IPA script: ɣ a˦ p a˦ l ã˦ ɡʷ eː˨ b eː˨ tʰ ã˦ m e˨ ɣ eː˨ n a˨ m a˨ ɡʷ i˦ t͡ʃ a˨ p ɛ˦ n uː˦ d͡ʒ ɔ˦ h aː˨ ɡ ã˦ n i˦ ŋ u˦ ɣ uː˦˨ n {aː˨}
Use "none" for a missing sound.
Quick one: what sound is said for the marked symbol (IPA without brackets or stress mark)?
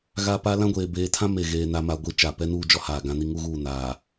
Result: aː˨